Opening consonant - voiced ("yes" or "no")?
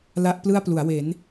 yes